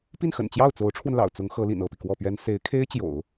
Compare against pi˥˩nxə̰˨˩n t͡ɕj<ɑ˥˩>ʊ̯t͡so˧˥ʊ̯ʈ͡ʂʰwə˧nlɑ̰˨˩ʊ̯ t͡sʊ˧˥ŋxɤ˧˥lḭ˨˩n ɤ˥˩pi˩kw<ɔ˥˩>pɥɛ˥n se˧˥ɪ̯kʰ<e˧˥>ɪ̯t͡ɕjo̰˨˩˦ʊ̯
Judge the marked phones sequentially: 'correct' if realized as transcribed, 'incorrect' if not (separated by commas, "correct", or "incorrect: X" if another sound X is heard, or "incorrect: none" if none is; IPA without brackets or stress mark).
correct, correct, incorrect: e˥